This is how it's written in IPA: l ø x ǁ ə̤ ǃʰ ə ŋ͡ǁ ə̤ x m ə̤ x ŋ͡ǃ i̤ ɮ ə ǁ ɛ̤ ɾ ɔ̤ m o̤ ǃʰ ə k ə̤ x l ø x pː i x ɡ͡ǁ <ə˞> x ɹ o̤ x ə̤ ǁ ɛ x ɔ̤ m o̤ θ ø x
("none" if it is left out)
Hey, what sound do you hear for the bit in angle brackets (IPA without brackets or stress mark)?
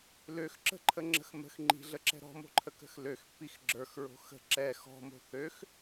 ə˞